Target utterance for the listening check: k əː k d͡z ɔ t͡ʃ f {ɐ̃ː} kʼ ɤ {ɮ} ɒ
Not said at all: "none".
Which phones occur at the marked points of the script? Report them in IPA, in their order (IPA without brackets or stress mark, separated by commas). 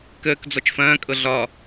ɐ̃ː, ɮ